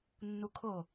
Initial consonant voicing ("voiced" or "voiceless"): voiced